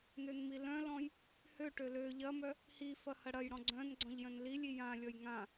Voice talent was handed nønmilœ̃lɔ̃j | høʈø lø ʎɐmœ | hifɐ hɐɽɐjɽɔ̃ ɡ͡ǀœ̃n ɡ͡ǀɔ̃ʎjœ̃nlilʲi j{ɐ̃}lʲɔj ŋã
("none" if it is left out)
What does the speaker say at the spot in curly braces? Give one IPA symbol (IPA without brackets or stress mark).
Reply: ã